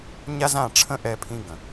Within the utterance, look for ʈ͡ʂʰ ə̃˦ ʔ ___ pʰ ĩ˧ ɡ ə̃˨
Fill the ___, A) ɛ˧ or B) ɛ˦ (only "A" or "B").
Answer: A